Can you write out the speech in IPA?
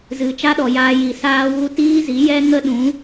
z ɨ˨ t͡ʃ a˦ ɗ ɔ˨ j aː˧ j i˨ s aː˦ w u˦ t iː˦ z i˨˦ j ɛ˦ ŋ ə˦ ɗ ũ˨˦

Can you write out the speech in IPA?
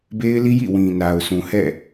b e˦ ɪ̯ l i˦ j ḭ˦˨ w ĩ˨ n a˨ ʊ̯ s ũ˨ h ɛ̰˦˨

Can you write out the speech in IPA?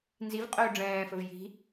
n z i v qʼ ɵː ɖ͡ʐ ɛ̃ː f ɵ v j i̤

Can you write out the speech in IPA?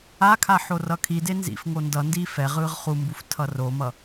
a kʰ a ħ o r ʌ kʰ i d e n z ḭ f ŋ o n d ʌ n d iː f ɛ ʁ ɯː ʁ χ u m b u f tʰ ʌ r o m ʌ

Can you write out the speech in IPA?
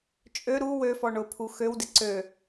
t͡ʃʼ ø ɾ u w ø f ɔ ɳ ʊ pʰ u x ø w d ɪ ǀ ø

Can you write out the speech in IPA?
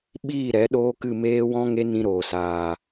ɓ iː˦˨ ɾ ɛ˨˦ ɗ oː˦ k ɨ˦˨ m eː˦ w ɔ̃˦ ŋ e˦ n ĩ˧ ɾ oː˨ s aː˨

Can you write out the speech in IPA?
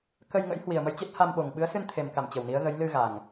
k ə˧ j ŋ ə̰˧˥ j h w i˨˩ ə̯ m ə˧ j t͡ɕ e˦˥ t̚ h a˧ m ɓ o˨˩ ŋ ɓ ɨ˨˦ ə̯ s ɨ˧ n t̪ʰ e˨˩ m k a˧˩ m t͡ɕ ə˨˩ w n i˨˦ ə̯ ɣ ə˨˦ j l ɨ˧ ɣ a˨˩ ŋ

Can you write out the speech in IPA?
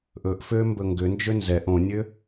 ʔ ɵ ʔ f ø m b ɵ ŋ ɡ ʏ n d͡ʒ ø n z ɛ ʔ õ nʲ ø

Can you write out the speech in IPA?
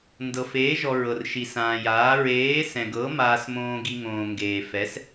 n d ɤ˧ f eː˧˥ ʒ ɔ˧ ɹ ɤ˧ r ʃ i˧ s ãː˧ j aː˧˥ ɹ eː˧˥ s ɛ̃˧ ɡ ɤ˧˥ m aː˧ s m õː˧ ɡ i˧ ŋ õː˧ ŋ ɡ eː˧ f ɛ˧˥ s

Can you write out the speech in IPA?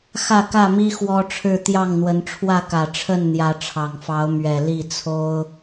x ä˥˨ k ä˥˨ m i˦ x w ɔ˦ ʈ͡ʂʰ ɻ̩˥˨ t̪ j ɑ˥˨ ŋ n̪ w ə˨˦ n ʈ͡ʂʰ w ä˥˨ k ä˨˩ ʈ͡ʂʰ ə˥˨ n n̪ j ä˨˦ ʈ͡ʂʰ ɑ˨˩ ŋ f ɑ˨˦ ʊ̯ m ɥ ɛ˨˩ l i˥˨ t͡sʰ o˦ ʊ̯

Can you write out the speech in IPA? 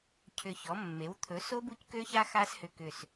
cʰ ʏ˧˩ ç ɔ˩˥ mː e˩˥ w t̪ʰ ɵ˩˥ s o˦˥ b u˦˥ c k ø˦˥ ç a˦˥ x a˦˥ s h ʏ˧˩ k ʏ˧˩ s

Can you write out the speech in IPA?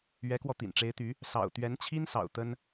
ɥ ɛ˧˥ k w ɔ˧ t̪ ḭ˨˩ n ʈ͡ʂ e˧˥ ɪ̯ t̪ y˧˥ | s ɑ̰˨˩ ʊ̯ t̪ ɥ ɛ˧˥ n t͡ɕʰ i˥ n s ɑ̰˨˩ ʊ̯ t̪ ə˥ n

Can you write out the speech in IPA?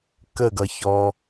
k ə ɡ ʌ ç ɔ

